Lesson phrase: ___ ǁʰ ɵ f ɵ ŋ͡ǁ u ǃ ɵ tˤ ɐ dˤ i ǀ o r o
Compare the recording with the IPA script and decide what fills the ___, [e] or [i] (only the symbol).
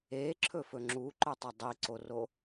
e